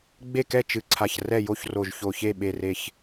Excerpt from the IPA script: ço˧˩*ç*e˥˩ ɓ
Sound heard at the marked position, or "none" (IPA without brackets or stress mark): ç